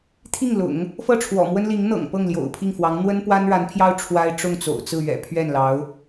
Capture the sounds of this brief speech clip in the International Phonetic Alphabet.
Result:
t̪ʰ i˥˩ ŋ l ʊ̰˨˩˦ ŋ | f ɤ˥˩ ʈ͡ʂʰ w ɔ̰˨˩ m w ə˥ n l i˧˥ ŋ n̪ ɤ̰˨˩ ŋ p ɤ˥˩ ŋ l j o̰˨˩ ʊ̯ pʰ i˥˩ ŋ f w ɑ˧˥ ŋ n̪ w ə˥ n p w a˥ n ɻ a˧˥ n pʰ j ɑ˥ ʊ̯ ʈ͡ʂʰ w a˥ ɪ̯ ʈ͡ʂ ʊ˥˩ ŋ t͡s o̰˨˩ ʊ̯ t͡s ɹ̩˥˩ ɥ ɛ̰˨˩ pʰ ɥ ɛ˥˩ n l ɑ˧˥ ʊ̯

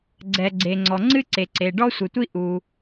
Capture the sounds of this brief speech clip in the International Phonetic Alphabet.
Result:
ɡ͡ǀ ɛ˩ ɡ͡ǀ e˩ ŋ͡ǀ ɔ˩ ŋ͡ǀ ɨ˥ ǀ e˩ ǀ e˩ ɖ ɔ˥ sʷ ɨ˩ tʷ i˥ ʔ u˩

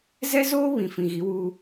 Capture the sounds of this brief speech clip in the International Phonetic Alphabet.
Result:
z ɛ˦ z oː˦ β ĩ˨ f ĩ˨ ɣ i˨˦ w uː˦

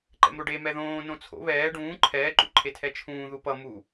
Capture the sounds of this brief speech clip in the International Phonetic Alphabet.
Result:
ǃ ɛ̰ m ɾ o ɖ e m ɛ ð õː n õ t͡sʰ o̰ β ɛː ɖ ũː ǃʰ ɛː ǃ ṵ ǃʰ e tʰ ɛ t͡ʃʰ ũː ð u p ʌ m u

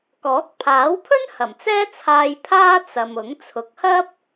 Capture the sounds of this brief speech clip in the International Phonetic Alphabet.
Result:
k ɔː˨˥ k̚ pʰ aː˨˥ w pʰ ɵ˥ n h ɐ˨˩ m t͡s ɛː˥ t͡sʰ aː˧ j pʰ aː˥ t͡s ɐ˨ m ʊ˨˥ ŋ t͡sʰ ʊ˨˥ k̚ h ɐ˥ p̚

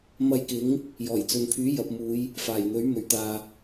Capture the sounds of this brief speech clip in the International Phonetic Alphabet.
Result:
m ɐ˧ j k ɪ˨˥ ŋ | j ɔː˨˩ j t͡s ɵ˨ n pʰ yː˨˥ j ɐ˨ p̚ m uː˨˧ j | f aː˨˩ j n̪ ɵ˨˥ ɥ m ɵ˨˩ ɥ t̪ aː˨

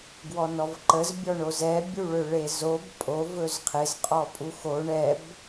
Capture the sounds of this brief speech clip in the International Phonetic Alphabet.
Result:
ɡ w ɔ n ɔ v ǃ ə z bʲ ɔ ɳ o z ɛ bʲ u ɭ ø ɭ e z o b pʼ o v ɵ z qʰ ɪ z qʼ ɔ pʼ u x o ɳ ɛ b

